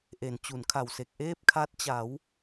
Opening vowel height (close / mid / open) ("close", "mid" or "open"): mid